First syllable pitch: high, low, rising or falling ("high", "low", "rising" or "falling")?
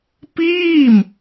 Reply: falling